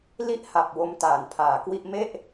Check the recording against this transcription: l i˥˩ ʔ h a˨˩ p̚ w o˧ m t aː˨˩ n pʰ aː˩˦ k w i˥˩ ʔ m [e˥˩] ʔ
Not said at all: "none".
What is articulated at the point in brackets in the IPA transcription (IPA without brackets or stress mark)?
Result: e˥˩